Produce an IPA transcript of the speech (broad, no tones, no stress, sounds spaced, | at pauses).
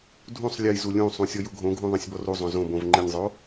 dʱ ũ sˤ lʲ ɘ j z u lʲ ũ sˤ ũ sʲ ɔ j u ɡʱ õ ɡʱ ũ ðˤ ɐ̃ sʲ b ɔ r u zˤ õ z õ b õ v ŋ͡ǃ ɪ nʲ zˤ o